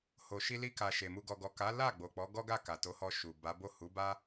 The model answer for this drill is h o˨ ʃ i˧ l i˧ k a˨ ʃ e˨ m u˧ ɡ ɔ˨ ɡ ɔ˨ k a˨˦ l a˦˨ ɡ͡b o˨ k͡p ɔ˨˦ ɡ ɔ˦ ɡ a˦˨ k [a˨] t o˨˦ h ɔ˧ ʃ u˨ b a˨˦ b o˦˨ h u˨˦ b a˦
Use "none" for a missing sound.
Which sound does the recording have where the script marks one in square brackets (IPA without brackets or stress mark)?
a˨